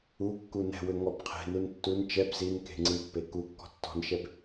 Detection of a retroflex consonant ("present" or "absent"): absent